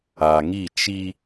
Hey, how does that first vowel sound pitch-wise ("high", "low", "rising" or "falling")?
low